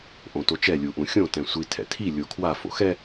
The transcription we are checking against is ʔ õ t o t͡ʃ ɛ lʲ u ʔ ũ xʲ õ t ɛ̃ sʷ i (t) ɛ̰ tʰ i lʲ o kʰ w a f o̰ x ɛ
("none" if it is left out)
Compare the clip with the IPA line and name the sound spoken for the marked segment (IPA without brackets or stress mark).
tʰ